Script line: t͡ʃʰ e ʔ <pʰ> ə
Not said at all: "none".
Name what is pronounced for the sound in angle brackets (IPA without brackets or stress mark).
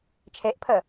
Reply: pʰ